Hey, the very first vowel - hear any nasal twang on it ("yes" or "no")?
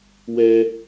no